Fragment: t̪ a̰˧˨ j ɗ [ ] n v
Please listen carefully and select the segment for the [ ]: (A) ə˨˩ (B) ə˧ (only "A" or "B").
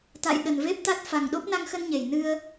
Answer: A